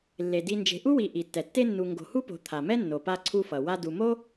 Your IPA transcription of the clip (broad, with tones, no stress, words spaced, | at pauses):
lːe˩di˨ nd͡ʒe̤˨ʔu˥wi˨ ʔi˩tːɛ˩tːe˦nːu˨ ŋɡo̤˨hu˥po̤˨ t̪ʰa˩mɛ˥ nːo˩pa˦ ǀʰu˦fʌ˩ wa˦ du˨mo˥